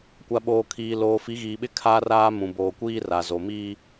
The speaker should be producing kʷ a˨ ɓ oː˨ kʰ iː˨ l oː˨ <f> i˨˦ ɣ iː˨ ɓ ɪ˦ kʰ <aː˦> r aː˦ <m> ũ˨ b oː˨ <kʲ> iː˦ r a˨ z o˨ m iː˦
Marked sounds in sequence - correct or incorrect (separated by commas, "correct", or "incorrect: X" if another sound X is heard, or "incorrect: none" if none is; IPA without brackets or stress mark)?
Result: correct, correct, correct, incorrect: kʷ